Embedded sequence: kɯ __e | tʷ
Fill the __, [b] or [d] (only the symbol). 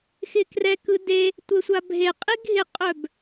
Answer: d